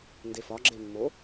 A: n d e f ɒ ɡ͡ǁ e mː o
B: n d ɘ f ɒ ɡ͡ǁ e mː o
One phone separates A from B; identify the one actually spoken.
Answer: A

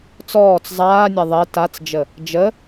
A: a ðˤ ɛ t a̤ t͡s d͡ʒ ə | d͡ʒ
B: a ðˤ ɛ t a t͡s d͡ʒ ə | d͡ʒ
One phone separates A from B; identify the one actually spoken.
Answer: B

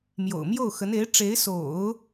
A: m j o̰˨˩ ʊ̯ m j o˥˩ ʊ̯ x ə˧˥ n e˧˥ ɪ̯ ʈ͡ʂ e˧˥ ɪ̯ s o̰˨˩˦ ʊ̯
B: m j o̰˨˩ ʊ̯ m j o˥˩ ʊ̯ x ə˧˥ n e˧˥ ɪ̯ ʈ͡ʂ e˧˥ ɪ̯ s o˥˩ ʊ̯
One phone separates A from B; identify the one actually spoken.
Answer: A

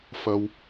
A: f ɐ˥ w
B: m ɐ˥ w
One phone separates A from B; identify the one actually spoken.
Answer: A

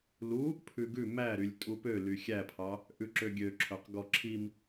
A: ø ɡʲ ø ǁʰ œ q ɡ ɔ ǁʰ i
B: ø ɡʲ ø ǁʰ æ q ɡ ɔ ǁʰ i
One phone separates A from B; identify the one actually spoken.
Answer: A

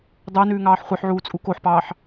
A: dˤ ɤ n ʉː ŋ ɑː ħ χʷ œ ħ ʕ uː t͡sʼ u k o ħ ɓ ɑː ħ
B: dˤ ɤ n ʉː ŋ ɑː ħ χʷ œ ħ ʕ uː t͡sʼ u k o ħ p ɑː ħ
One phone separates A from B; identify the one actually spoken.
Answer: B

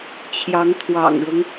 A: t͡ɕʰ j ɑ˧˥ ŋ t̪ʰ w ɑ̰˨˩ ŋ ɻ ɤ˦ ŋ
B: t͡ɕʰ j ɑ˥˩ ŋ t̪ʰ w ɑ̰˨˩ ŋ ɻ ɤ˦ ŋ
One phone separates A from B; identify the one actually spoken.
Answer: A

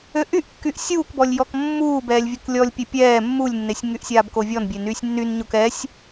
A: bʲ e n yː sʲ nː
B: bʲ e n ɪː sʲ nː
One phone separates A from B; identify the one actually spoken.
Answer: A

